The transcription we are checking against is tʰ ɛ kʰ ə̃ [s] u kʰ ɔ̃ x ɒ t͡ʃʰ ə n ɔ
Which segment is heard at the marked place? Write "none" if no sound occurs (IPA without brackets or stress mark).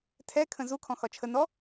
z